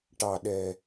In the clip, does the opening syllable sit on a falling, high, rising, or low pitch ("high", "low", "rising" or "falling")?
low